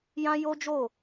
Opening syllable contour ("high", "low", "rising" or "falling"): high